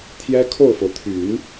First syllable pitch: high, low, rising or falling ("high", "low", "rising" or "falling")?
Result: high